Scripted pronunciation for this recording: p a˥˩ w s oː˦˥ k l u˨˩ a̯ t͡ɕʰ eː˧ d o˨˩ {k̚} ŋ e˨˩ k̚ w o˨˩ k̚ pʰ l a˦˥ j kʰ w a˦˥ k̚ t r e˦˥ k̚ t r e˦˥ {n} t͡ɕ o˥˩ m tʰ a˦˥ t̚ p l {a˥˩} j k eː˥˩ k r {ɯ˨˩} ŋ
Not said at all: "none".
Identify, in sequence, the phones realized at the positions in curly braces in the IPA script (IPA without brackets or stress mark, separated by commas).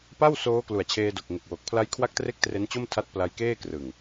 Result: k̚, n, a˧, ɯ˨˩